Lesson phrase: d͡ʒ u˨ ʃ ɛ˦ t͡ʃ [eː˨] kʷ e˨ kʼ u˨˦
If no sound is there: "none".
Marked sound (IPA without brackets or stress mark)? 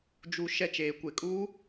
eː˨